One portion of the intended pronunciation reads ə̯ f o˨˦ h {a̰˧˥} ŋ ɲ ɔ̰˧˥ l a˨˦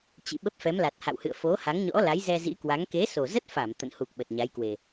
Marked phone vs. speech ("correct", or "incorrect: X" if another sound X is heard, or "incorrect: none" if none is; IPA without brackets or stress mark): incorrect: a˨˦